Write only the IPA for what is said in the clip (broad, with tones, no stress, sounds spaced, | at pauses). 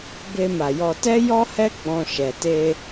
b e˧ m a˨ j ɔ˧ t ɛ˦ j ɔ˦ h ɛ˦ ɡ͡b ɔ̃˧ ʃ ɛ˨ t e˧